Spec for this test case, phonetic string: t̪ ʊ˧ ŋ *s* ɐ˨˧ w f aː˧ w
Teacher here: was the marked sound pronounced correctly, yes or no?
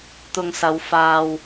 yes